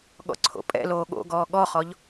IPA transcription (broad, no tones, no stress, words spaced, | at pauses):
ɠɔ̰ǀʰo̰pʼɛ̰loː ɠo̰ɡɔː ɠɔχɔʎ